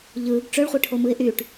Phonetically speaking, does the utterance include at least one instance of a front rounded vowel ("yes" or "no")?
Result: yes